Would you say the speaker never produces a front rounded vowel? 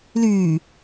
no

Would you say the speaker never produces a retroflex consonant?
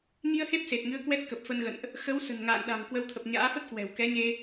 yes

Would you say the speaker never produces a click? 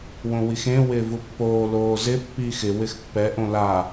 yes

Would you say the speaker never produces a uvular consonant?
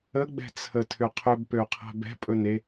no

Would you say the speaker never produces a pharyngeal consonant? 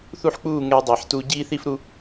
no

